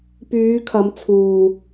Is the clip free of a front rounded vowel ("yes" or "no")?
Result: no